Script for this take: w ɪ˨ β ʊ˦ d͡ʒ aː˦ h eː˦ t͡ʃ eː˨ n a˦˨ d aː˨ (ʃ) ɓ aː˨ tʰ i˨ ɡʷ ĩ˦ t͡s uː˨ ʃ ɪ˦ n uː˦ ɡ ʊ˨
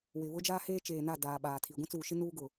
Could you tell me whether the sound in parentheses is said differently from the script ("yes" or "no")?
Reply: yes